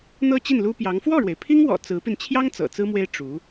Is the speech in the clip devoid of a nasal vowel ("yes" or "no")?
yes